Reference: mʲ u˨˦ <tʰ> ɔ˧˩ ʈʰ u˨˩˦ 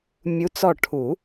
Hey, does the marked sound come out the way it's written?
no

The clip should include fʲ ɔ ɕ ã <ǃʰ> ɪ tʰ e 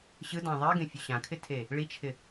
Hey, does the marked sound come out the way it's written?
no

